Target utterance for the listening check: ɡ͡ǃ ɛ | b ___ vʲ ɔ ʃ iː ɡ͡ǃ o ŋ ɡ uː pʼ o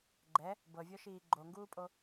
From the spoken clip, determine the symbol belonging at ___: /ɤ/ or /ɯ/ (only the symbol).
ɤ